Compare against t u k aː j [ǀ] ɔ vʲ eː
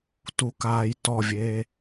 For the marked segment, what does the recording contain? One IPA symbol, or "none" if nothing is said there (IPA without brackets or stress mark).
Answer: t